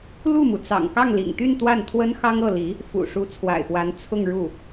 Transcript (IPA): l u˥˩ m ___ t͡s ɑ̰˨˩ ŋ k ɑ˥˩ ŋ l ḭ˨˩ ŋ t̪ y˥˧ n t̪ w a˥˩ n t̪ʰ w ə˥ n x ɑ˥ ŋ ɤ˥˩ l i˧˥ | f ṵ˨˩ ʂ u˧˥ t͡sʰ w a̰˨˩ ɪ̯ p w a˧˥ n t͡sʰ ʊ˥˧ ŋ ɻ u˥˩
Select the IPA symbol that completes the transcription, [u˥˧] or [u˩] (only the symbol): u˩